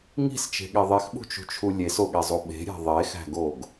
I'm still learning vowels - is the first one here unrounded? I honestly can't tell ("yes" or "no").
yes